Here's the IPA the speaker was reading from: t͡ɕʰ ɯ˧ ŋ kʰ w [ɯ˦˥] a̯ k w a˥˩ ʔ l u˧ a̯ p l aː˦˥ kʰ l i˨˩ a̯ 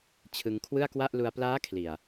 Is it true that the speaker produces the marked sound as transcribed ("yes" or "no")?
no